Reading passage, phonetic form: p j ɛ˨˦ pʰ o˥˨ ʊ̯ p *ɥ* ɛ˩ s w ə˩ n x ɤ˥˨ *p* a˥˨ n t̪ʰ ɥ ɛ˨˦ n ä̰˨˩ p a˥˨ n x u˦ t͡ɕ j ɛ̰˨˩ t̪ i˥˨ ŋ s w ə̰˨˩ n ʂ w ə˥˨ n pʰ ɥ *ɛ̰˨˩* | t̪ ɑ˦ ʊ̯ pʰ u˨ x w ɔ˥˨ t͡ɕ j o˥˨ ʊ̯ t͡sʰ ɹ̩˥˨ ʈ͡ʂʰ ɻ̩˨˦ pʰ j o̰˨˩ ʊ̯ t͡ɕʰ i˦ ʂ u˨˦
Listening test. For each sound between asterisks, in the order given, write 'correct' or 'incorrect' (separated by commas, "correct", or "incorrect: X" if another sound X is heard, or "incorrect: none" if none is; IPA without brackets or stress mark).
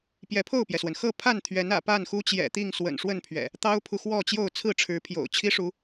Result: incorrect: j, incorrect: pʰ, correct